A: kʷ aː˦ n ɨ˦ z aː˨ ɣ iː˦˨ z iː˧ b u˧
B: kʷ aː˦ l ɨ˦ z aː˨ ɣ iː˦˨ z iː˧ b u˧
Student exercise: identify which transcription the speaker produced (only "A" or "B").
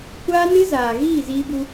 A